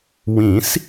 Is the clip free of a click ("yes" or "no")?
yes